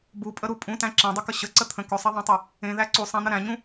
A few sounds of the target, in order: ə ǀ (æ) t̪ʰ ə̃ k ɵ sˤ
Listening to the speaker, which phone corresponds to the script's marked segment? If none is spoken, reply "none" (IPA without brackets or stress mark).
ə